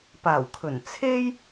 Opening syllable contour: low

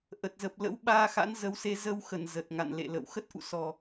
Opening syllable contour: low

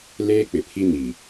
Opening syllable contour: high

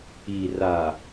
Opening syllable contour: low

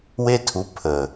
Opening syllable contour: high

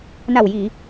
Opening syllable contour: low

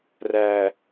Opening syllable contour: low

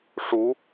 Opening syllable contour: rising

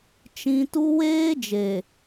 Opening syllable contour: high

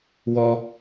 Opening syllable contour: high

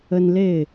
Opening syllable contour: high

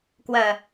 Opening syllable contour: low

